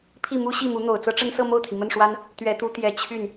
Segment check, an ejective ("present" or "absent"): absent